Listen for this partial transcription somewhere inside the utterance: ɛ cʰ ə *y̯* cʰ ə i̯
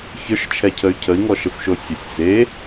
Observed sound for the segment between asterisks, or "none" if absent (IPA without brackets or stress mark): y̯